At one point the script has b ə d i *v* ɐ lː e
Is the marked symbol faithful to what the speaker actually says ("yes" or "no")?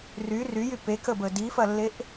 no